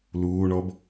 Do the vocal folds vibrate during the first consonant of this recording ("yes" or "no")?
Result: yes